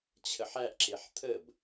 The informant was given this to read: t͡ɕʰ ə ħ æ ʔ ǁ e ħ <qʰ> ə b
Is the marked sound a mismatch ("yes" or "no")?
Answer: yes